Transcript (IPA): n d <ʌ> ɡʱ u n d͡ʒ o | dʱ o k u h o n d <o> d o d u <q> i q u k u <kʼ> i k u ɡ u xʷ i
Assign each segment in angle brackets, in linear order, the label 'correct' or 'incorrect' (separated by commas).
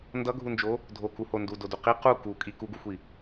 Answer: correct, incorrect, correct, correct